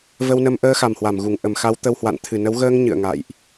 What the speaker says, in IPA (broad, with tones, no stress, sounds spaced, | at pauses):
v ə˧ w n ə˧ m ʔ əː˧ x a˨˩ m h w a˧˩ m ɣ u˧˩ ŋ ʔ ə˧˩ m x a˨˦ w t̪ ə˧ w h w a̰˧˨ n t̪ʰ ɨ˧˩ n ə˨˦ w ɣ əː˧ ŋ ɲ ɨ̰˧˨ ə̯ ŋ a̰˧˨ j ʔ